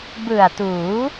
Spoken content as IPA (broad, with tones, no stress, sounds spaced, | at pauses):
b ɯ˨˩ a̯ t uː˩˦